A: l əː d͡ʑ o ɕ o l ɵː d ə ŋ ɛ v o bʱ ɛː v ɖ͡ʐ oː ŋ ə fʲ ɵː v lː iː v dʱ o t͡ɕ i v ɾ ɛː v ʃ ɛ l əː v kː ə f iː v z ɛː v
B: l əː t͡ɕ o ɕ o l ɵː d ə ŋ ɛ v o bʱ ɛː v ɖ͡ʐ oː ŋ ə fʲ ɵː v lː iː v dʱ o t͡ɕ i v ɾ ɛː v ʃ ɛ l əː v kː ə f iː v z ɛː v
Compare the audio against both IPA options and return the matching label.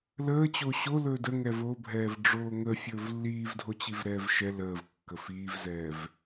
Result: B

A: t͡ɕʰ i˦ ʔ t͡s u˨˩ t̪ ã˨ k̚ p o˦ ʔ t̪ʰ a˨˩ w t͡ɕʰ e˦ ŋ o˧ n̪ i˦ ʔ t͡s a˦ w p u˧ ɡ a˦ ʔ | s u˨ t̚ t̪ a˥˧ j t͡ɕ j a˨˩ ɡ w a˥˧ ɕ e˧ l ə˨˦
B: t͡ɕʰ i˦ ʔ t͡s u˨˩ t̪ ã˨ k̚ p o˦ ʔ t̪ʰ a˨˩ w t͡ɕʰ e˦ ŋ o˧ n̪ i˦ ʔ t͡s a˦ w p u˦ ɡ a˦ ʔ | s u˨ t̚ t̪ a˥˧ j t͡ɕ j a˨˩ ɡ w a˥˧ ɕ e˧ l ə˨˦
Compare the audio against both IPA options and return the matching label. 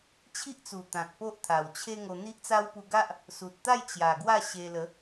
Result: A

